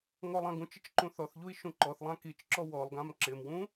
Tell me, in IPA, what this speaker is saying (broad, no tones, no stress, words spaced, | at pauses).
ŋɔlˠãɡũt͡ʃɪt͡ʃ ǃũθɔθʎui̯ ʃũǃɔθlˠã kit͡ʃǁɔ wɔlˠɡãm ǁɪmwũ